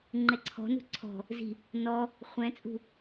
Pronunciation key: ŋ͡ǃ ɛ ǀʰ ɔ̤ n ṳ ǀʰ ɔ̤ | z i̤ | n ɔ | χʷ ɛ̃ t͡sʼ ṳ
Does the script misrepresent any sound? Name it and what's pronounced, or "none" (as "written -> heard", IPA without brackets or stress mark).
none